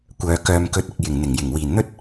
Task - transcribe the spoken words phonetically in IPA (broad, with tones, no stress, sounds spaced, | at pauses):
kʷ œː˨ k œː˨ m k ɵ˨˥ t̚ ɪ˨ k̚ j ɪ˨˩ ŋ n̪ ɪ˨˩ ŋ j ɪ˨˩ ŋ w iː˨˩ n n̪ ɵ˥ t̚